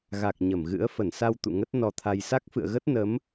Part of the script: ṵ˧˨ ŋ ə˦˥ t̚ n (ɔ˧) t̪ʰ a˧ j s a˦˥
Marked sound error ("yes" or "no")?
no